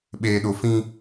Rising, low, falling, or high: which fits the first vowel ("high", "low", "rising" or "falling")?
low